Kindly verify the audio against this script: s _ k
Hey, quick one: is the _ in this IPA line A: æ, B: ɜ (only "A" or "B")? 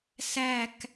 A